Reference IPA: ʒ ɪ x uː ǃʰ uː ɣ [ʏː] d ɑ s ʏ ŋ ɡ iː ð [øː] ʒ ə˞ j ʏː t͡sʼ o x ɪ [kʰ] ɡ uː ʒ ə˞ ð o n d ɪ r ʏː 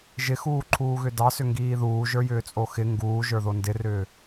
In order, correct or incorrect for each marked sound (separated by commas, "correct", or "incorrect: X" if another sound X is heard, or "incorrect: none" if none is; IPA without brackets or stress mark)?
incorrect: ʏ, incorrect: uː, incorrect: ŋ